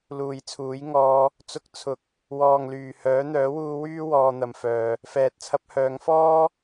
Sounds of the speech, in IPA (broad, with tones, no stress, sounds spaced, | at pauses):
l uː˨ j t͡sʰ uː˨˥ j ŋ ɔː˧ | t͡s ʊ˧ k̚ t͡sʰ ʊ˨˥ k̚ | w ɔː˨ ŋ l yː˨˩ h œː˨˥ n̪ œː˨˥ w uː˧ w yː˥ w ɔː˧ n̪ ɐ˨ m f œː˨ | f ɛː˨ t̚ t͡sʰ ɐ˧ p̚ h œː˨˧ ŋ f ɔː˥